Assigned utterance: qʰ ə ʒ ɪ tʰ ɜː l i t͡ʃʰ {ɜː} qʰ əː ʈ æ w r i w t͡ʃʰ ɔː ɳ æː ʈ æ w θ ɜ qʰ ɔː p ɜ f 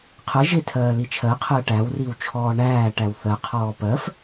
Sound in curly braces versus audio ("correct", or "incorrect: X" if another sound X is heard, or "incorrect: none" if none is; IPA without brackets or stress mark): incorrect: ɜ